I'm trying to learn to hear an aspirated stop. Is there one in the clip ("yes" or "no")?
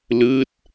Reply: no